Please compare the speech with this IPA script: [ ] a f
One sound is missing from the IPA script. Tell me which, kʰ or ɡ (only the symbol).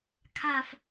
kʰ